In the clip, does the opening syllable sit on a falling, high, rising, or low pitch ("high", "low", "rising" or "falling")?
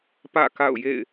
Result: falling